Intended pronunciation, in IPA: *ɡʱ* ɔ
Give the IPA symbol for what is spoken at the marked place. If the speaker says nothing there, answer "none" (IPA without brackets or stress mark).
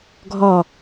ɡʱ